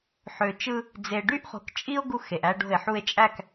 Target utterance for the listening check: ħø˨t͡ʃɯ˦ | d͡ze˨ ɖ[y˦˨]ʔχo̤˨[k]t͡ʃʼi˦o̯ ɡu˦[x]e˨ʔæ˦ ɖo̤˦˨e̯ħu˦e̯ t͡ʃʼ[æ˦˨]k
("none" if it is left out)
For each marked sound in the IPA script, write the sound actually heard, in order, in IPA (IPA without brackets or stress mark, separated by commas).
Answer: y˦, k, x, æ˦˨